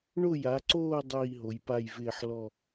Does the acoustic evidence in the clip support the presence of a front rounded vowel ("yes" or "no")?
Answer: no